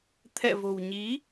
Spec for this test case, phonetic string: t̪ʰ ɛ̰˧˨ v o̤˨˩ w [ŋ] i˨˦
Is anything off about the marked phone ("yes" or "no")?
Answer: yes